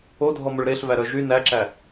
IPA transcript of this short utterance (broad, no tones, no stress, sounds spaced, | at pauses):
o dʱ ɔ m ɵ ɭ ɾ e ɬ v æ ɾ œ ʒ y n æ ǁ æ